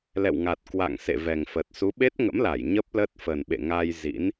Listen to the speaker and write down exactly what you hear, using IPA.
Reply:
l ɛ̰˧˨ w ŋ a˨˩ t̚ k w a̰˧˨ ŋ s ḛ˧˨ v ɛ˨˩ ŋ f ə˨˩ t̚ s u˨˦ ɓ e˦˥ t̚ ŋ ə̰˧˥ m l a˧˩ j ɲ ə˦˥ p̚ l ə˦˥ t̚ f ə˨˩ n ɓ ḛ˧˨ ŋ a˧ j z ḭ˧˥ n

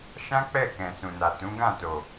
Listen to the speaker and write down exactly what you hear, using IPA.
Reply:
ʃ ã˦ k͡p ɛ˦˨ k ɛ̃˨ s ũ˨ n a˨ t ũ˨˦ ɡ ã˦˨ t o˨

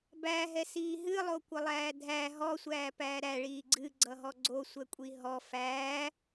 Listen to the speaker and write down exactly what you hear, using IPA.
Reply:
b æ ɦ ɛ s iː ɦ ɨ lˠ o kʷ ə lˠ æː dʱ æ ɦ ɔ sʷ æː p æː ɾ æ ɭ iː ɡ͡ǀ ɨ ɡ͡ǀ ʌ ɦ ɔ ɡ͡ǀ o sʷ ɛ kʷʼ i ɦ ɔ f æː

